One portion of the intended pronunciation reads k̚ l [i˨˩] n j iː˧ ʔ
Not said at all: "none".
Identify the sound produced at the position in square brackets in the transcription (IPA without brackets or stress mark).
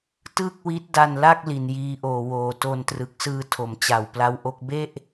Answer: i˨˩